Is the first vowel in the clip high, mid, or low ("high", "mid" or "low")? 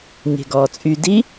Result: mid